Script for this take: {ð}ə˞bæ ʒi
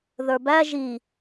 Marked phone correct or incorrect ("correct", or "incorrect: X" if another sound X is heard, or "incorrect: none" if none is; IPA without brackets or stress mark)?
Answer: correct